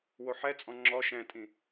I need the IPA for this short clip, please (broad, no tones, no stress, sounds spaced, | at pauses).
w o ħ ɛ t͡sʼ ɔ̃ ŋ͡ǁ ɔ ʃ ɛ̃ tʼ ĩ